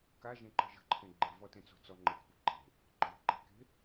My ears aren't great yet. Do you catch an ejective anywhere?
no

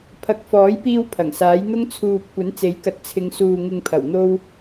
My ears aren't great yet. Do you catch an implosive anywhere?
no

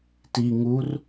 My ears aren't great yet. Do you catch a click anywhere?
no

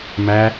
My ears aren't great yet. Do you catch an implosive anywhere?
no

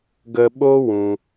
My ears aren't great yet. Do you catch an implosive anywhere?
yes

